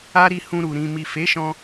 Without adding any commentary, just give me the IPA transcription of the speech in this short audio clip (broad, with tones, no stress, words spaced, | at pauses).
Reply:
a˦ɾi˧hũ˧ɾu˨ ɾĩ˨mi˨fe˨˦ʃɔ̃˧